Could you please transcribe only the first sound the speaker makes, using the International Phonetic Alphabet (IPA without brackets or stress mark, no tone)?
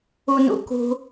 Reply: u